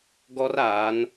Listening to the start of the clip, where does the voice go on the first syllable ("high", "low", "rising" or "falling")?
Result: high